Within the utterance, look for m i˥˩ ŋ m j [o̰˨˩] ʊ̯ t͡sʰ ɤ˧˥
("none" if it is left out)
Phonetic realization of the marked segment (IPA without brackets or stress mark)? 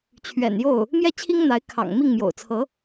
o̰˨˩